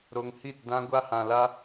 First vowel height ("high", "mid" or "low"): mid